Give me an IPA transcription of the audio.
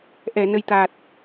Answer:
ʔ ɛ˨˩˨ n ə˨˩ j t̪ a˨˩ t̚

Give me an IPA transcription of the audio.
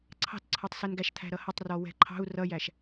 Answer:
ǀʰ ɑ̤ t ǀʰ ɒ tˤ s ɛ n ɡ æ ʃ t̪ʰ æ̤ ɾ ʌ h ʌ tˤ r ɔ w ɛ̤ ǃʰ ɑ̤ u̯ r ʌ j æ ʃ

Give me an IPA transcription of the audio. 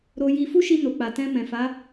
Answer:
ɾ o˧ j i˧ f u˦ ʃ i˧ n o˨ k͡p a˨ t ɛ̃˧ m ɛ̃˨ f a˨˦

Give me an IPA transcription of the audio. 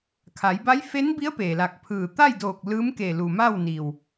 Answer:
kʰ a˩˧ j b a˧˥ j f e˧˥ n b i˧˥ ə̯ p eː˩ l a˧˩ k̚ pʰ ɯː˧˩ t̪ a˥˨ j d oː˧˩ k̚ l ɯː˧˥ m k e˧˩ l u˩ m a˥˨ w n i˩ w

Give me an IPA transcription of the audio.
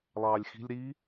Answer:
lˠ ɑː lʲ x i̤ lʲ ɾ i

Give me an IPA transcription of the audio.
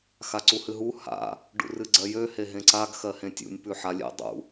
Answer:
x a ǀ u h ɨ ɦ u h a̰ | ɖ ṵ r ɨ ɡ͡ǀ ɜ j ø h e ɦ ẽ ǀ a ɡ x ɜ h ẽ tʲ ṵ nʲ p ʉ ħ a lʲ ḛ dˤ ṵ

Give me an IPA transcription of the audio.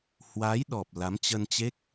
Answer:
h w aː˨˦ j ɗ ɔ˨˩ p̚ l a˨˦ m t͡ɕ ə˧ n t͡ɕ e˦˥ k̚

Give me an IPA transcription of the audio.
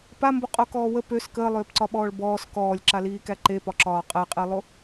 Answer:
p a m b o qʼ o k ɔː w ə p ø s k əː lˠ øː p ǀ ɒ ɓ ɔː ɭ b ɔː s k ɔː lʲ ǁ a l iː k æ ǃ e p ɒ ǁ ɒː qʼ æ qʼ e lˠ o

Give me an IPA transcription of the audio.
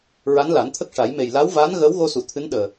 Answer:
ɹ a˧˥ n l a˨˩˦ n t̪ʰ ə˦˥ k̚ ʂ a˨˩˦ j m e˨˩ j l a˧˥ w v aː˧˥ n ɣ əː˧˥ w ɣ o˧ s u˨˩˨ t̪ʰ ɨ˧˥ n ɗ əː˨˩

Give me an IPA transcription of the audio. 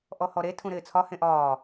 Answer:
ʔ ɔ h ɔ ɾ e tʰ ũ ɾ ɪː t͡sʰ ɒ h ẽ ʔ ɒː

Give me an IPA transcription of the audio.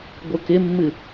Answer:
ɡʷ ɯ k ɪ mː ɨ

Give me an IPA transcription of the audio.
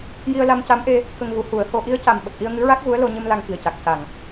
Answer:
j i˧ ə̯ l a˧ m c a˧˥ m ʔ e˧ | k ə˧ ŋ ɣ u˨˩˦ h u˨˩˦ ə̯ h o˧ ʔ i˧˥ ə̯ c a˨˩ m ɓ ə˨˩ k̚ ʔ i˧ ə̯ ŋ ɨ˧˥ ɹ a˦˥ k̚ ɣ u˧˥ ə̯ l o˧ ɲ ɨ˧ m l a˧ ŋ k i˨˩ ə̯ c a˨˩ k̚ c a˨˩ ŋ

